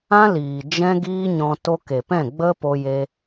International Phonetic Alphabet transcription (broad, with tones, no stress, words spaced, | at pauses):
ã˦liː˨ d͡ʒɛ̃˦ɡiː˦ɲɔ̃˧ to˧ke˨pɛ̃˦˨ ɡ͡bə˦po˧je˧